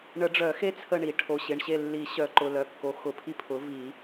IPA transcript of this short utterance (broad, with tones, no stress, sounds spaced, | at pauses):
ɳ ə˨˩˦ ɖ͡ʐ œ˨˩˦ x e˦ t͡sʰ ə˦˨ ɳ i˨˩˦ ʈʰ o˩˧˩ ɕ ɪ˩˧˩ ɳ ɕ e˦˨ lː i˨˩˦ ɕ œ˨˩˦ ǃ ʊ˩˧˩ l œ˩˧˩ kː o˩˥ x ʊ˩˧˩ pʰ i˦ pʰ ʊ˩˥ v i˨˩˦